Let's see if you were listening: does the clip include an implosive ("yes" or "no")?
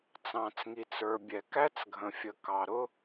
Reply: no